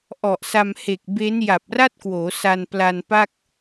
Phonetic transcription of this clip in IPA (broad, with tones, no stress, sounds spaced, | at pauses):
ʔ ɔ˨˩ ʔ s a˧ m h e˨˩ k̚ b e˦˥ n j a˨˩ p̚ r a˥˩ t̚ k w oː˩˦ s a˧ n p l a˧ n p a˥˩ k̚